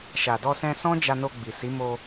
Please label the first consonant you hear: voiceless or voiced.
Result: voiceless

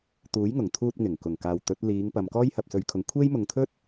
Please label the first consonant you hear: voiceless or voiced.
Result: voiceless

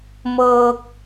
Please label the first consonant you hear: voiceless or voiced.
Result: voiced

